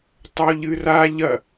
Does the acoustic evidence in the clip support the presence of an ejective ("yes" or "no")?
no